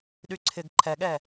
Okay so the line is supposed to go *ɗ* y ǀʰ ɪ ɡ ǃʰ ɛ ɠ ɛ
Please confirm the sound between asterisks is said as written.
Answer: yes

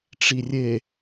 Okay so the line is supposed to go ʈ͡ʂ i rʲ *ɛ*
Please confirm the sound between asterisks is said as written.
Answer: no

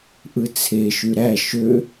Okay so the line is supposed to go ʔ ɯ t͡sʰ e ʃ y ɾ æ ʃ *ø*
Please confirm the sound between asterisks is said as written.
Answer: yes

